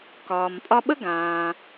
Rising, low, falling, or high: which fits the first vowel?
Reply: low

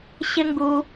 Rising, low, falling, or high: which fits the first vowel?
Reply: high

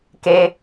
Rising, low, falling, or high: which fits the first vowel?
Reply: high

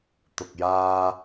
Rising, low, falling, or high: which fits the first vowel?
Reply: low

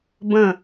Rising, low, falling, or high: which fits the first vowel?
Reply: falling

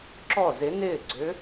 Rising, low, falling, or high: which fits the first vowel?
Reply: falling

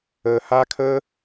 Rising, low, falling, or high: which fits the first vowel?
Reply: low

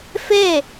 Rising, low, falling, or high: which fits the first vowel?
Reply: falling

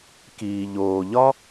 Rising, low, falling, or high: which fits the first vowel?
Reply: low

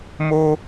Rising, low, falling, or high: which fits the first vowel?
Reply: high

